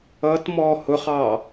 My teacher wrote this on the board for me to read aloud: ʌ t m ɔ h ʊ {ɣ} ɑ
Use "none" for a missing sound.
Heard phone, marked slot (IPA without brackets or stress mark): χ